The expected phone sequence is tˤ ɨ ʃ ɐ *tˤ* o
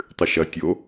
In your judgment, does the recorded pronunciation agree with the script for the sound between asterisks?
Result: no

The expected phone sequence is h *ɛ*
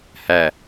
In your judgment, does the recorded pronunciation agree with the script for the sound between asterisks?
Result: no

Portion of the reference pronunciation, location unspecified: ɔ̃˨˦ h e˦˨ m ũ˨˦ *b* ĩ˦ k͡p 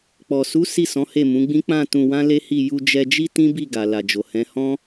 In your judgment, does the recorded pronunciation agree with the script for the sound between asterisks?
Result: no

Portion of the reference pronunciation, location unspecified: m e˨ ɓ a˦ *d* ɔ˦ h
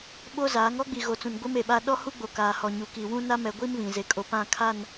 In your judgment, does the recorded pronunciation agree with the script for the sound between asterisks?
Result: no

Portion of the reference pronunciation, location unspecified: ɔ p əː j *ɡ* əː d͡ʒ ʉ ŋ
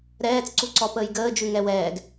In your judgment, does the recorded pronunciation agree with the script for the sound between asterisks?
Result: yes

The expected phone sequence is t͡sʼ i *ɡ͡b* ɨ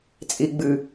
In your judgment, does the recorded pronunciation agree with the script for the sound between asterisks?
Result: yes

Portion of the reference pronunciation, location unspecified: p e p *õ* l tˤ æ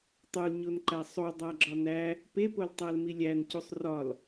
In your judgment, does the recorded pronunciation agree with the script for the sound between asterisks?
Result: no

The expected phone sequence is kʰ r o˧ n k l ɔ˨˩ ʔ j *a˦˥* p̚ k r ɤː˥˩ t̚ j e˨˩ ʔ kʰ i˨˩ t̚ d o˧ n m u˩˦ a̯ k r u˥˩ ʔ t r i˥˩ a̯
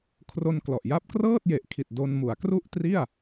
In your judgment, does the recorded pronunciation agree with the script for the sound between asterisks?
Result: yes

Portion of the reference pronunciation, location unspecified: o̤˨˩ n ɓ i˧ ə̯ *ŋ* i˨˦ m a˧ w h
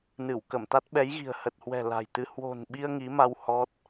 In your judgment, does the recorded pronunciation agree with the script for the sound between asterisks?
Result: yes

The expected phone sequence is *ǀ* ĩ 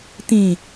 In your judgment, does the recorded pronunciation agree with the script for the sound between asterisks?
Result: no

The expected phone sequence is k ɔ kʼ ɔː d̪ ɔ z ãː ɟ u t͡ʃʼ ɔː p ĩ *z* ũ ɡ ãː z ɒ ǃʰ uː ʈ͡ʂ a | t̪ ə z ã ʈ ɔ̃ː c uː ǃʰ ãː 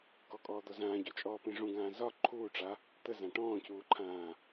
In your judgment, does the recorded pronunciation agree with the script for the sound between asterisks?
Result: no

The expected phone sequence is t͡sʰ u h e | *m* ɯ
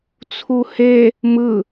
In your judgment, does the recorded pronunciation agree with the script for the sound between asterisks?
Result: yes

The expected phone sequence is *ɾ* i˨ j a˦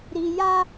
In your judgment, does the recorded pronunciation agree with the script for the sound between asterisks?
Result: yes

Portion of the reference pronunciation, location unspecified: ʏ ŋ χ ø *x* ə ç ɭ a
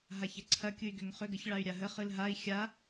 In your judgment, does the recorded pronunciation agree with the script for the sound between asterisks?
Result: no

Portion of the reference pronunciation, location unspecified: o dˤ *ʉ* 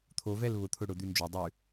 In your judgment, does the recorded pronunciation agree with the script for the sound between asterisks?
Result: yes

